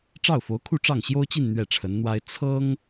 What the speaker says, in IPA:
ʈ͡ʂ ɑ˥˩ ʊ̯ f o˧˥ ʊ̯ kʰ u˥˧ ʈ͡ʂ ɑ˥˩ ŋ ɕ j o˥ ʊ̯ t͡ɕ i˥˧ n n̪ ɥ ɛ˥˩ ʈ͡ʂʰ ə˧˥ n n̪ w a˥ ɪ̯ t͡sʰ ɤ˥ ŋ

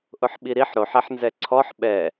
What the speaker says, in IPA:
ʔ ʊ ħ ɓ i ɾ i ħ ɾ o ħ ɛ ħ n z ɛ ǀʰ ɔ ħ ɓ ɛ

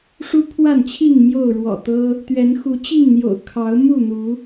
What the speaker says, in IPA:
ʂ u˦ pʰ w a˥˨ n t͡ɕʰ i˥˨ ŋ m j o˥˨ ʊ̯ ɻ w ɔ̰˨˩ t̪ ɤ˦ | t̪ ɥ ɛ˨˦ n x u˨˦ t͡ɕ i˥˨ ŋ n̪ j o̰˨˩ ʊ̯ kʰ ɑ˨˦ ʊ̯ m u˥˨ n̪ u˨˦

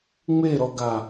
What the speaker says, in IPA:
ŋ͡m e ɾ ɔ ɡ a

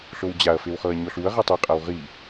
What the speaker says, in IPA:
ɬ o w d͡ʑ a ɐ̯ f e w χ ɤ ɐ̯ ɲ ɔ ɬ u ɐ̯ ʁ i tˤ ɯ qʼ a w ʁ i

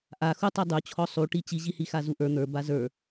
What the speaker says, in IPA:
ʔ a x u tˤ i dˤ u t͡ɕʰ ɔ sˤ u ʈ i t͡ɕ i ʑ i h i x a z u ʔ ə˞ n̪ ə˞ b a z ə˞

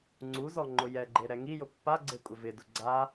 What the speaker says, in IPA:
ŋ͡ǀ u z ɔ ŋ͡ǃ ʊ j ɛ ɡ͡ǃ e ɾ ɛ ŋ i j ʊ pː a ɡ͡ǀ e kʷʼ ɪ v ɪ d ʊ ɡ͡ǀ a

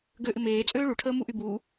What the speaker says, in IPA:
ɡ ø ʔ ɪ m eː t͡sʼ øː ɭ u ʈʰ əː m u ʔ y b uː

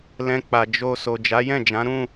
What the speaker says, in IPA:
l ɛ̃˧ k͡p a˨ d͡ʒ o˧ s o˨ d͡ʒ a˨˦ j ɛ̃˦˨ d͡ʒ ã˨˦ ɾ ũ˦˨

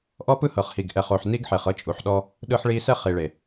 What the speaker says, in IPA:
ʔ ɔ˦ p ɯ˦ h ɤ˨ χ h i˨ ɡ ʔ ɛ˨ χ o˨ ħ n i˦ ɡ ħ e˨ χ ɤ˦ t͡ʃʼ u˨ ħ ɗ ɔ˦ | ɗ ɯ˦ ħ ɭ i˦ s ɛ˦ χ i˨ ɭ e˨

